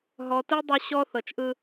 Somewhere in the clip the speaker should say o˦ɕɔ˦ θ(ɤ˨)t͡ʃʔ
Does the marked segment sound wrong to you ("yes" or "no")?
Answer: no